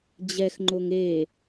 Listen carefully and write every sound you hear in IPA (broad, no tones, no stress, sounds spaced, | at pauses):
d͡ʑ ɛ x ŋ͡ǃ o ŋ e